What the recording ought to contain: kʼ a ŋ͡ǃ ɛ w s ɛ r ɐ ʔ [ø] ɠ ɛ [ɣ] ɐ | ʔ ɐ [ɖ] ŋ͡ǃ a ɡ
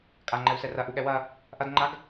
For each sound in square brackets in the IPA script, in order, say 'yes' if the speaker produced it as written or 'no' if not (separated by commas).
no, no, no